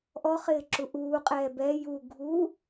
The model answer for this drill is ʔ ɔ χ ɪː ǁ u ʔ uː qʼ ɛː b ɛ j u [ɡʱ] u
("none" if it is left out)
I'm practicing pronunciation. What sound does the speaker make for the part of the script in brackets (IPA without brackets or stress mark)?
ɡʱ